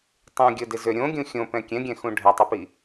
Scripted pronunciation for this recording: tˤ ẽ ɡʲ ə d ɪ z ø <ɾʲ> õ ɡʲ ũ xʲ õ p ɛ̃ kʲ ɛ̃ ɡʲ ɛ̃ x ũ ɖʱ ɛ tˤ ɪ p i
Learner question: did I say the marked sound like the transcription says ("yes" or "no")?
yes